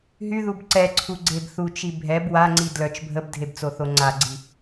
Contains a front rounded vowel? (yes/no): yes